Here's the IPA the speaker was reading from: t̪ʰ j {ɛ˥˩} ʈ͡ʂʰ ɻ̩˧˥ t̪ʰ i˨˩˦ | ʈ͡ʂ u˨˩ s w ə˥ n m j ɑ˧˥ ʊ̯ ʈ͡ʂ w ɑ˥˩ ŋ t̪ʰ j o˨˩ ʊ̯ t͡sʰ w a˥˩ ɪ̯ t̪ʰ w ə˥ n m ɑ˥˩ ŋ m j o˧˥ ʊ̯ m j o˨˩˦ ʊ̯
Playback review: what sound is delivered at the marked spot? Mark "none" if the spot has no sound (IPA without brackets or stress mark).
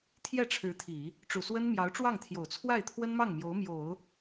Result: ɛ˥˩